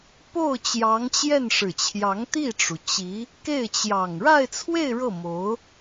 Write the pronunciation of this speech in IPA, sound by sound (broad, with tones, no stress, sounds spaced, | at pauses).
p o˥˩ ʊ̯ t͡ɕ j ɑ˧˥ ŋ t͡ɕ j ɛ˥˩ n ʂ ɻ̩˨˩ t͡ɕʰ j ɑ˧˥ ŋ t̪ i˥˩ ʈ͡ʂ u˩ t͡ɕ i˧˥ | k e˥˩ ɪ̯ t͡ɕ j ɑ˨˩ ŋ ɻ a˥˧ ɪ̯ t͡sʰ w e˥˧ ɪ̯ ɻ ɤ˥˩ m o˧˥ ʊ̯